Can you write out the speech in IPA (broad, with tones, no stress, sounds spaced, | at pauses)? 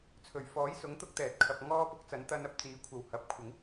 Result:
t͡sʰ ɵ˨˩ ɥ f ɔː˨˥ j s ʊ˨˥ ŋ t̪ ʊ˧ k̚ t̪ ɛː˨˥ t̚ kʰ ɐ˨ p̚ ŋ ɔː˧ p ʊ˨˥ k̚ t͡s ɐ˨˧ n t̪ ɐ˧ n ɐ˨˥ p̚ t͡s iː˨˥ kʷʰ ɐ˨ w h ɐ˨ p̚ kʷʰ ɪ˨˥ ŋ